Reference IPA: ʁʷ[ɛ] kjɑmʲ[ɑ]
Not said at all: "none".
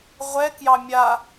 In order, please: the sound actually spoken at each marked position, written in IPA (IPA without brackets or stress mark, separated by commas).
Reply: ɛ, a